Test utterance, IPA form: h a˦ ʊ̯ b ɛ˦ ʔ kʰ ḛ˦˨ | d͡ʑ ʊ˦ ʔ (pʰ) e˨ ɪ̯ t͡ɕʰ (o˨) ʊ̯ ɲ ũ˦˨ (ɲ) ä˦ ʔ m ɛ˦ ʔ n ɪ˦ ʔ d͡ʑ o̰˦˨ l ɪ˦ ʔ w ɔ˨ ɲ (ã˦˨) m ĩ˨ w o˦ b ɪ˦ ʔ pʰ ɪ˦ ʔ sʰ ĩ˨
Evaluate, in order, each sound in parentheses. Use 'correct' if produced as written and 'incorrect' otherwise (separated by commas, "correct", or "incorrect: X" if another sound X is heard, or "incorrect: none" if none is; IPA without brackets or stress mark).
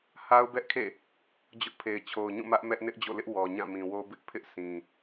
correct, correct, incorrect: m, correct